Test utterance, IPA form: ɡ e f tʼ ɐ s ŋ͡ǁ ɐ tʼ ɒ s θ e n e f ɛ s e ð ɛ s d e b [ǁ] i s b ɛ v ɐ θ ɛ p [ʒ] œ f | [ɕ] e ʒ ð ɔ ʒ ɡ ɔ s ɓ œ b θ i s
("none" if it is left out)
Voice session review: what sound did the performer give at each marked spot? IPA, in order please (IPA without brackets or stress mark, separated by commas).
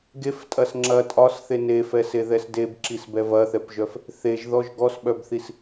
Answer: ǁ, ʒ, θ